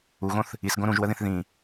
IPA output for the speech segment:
u ɣ õ θ | i s ɡ õ ɾ ũ ʒ w ə ð ĩ θ ð ĩ

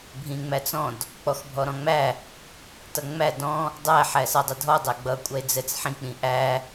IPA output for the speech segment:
bʱ ĩ ŋ͡m æ t͡s ɔ̃ d | k͡p ɔ x bʱ ɔ ɾ ɔ̃ ŋ͡m æ | t ʌ ŋ͡m æ d ɔ̃ | dˤ æ ħ æ s ʌ dˤ ɛ dʱ ɔ dˤ æ ɡ͡b ʌ kʷʼ ʌ e̯ d͡z ɛ t͡s ħ ĩ k͡p ĩ ʔ æ

